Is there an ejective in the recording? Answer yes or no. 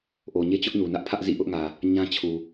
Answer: no